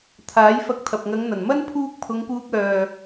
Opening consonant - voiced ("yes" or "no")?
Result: no